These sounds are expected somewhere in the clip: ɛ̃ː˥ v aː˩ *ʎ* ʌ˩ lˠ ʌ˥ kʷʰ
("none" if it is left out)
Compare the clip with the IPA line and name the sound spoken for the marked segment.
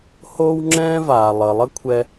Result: lˠ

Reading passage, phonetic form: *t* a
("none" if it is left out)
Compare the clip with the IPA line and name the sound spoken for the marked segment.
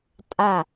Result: tʼ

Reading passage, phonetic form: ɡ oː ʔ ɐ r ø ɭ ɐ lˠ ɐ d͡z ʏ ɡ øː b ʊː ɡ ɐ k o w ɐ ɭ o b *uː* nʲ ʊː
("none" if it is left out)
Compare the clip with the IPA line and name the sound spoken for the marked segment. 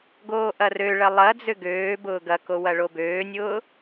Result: øː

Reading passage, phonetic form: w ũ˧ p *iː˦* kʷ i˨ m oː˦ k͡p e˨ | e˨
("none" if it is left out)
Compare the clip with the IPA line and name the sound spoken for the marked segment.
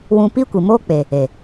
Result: i˦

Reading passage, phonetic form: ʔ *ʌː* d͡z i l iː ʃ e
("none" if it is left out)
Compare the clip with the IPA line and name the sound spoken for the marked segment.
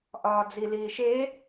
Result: ɒː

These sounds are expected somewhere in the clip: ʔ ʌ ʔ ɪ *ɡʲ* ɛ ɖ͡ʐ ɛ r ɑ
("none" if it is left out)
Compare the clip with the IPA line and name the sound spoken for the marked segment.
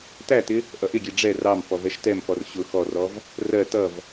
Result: ɡʲ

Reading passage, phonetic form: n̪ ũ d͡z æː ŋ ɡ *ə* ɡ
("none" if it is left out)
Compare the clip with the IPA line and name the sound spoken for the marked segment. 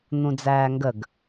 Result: ə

